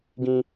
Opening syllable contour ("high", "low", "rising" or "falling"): high